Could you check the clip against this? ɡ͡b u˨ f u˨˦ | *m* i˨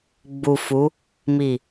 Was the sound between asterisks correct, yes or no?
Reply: yes